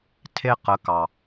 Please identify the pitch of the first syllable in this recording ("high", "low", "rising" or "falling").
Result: high